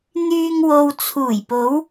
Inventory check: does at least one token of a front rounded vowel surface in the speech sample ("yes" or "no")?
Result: yes